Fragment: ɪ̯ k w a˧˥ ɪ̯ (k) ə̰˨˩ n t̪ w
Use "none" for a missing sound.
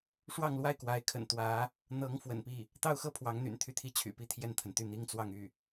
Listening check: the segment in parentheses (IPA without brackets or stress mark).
kʰ